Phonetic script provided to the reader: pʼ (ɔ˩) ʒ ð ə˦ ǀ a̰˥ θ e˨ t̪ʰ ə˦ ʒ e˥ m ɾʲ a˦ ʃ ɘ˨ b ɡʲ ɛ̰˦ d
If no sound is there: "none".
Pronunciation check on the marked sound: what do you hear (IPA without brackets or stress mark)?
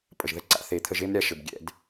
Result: ə˩